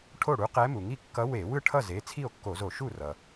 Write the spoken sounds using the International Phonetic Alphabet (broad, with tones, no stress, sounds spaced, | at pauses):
ʈʰ o˥˩ ɽ u˧˥ q ɛ˧˥ m u˩ ŋ i˥˩ kː ʌ˧˥ w e˧˩˧ w ɯ˥˩ ʈʰ ʌ˥˩ z e˩˧˩ t͡sʰ i˥˩ o̯ kː o˧˩˧ z o˧˩˧ ʃ u˥˩ r ʌ˩